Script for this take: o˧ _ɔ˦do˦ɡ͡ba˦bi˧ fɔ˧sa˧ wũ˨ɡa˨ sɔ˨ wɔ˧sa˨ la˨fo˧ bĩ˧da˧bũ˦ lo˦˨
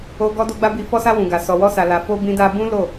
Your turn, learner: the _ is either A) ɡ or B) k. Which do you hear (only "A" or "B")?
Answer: A